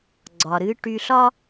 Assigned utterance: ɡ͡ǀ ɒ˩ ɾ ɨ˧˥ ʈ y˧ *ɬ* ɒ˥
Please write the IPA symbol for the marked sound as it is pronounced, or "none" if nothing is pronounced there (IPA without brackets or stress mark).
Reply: ɬ